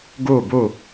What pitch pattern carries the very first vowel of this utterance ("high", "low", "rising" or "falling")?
falling